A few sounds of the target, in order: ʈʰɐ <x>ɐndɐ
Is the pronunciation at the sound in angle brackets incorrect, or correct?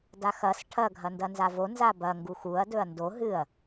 incorrect